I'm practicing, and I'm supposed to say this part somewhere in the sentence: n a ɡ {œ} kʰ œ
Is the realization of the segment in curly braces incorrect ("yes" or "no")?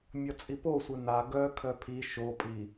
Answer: no